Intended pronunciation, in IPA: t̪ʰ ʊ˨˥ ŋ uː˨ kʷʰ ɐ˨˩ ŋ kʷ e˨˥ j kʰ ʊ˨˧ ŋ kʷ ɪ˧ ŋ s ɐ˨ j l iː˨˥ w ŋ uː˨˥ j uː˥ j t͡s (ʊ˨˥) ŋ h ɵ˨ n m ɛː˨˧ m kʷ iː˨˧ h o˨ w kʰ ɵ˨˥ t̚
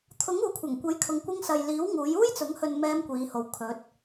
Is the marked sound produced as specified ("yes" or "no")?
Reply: yes